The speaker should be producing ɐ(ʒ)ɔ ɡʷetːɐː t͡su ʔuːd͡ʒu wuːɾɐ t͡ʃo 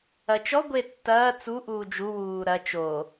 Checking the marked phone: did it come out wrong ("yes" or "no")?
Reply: yes